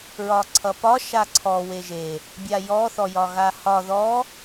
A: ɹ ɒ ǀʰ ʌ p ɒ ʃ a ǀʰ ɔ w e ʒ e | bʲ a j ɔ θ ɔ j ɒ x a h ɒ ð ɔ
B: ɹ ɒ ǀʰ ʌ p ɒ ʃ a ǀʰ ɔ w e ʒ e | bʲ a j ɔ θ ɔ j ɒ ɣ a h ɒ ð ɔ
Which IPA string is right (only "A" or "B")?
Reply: B